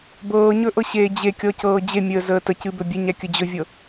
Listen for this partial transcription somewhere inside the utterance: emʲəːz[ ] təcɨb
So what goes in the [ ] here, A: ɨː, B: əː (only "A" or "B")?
B